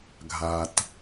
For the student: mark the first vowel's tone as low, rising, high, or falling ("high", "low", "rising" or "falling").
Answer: low